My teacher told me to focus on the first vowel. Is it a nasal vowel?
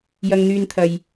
no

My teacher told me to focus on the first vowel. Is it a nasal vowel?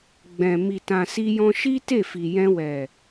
yes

